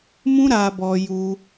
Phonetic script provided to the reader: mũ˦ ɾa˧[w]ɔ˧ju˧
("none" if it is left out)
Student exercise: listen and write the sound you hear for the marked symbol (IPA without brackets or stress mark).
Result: b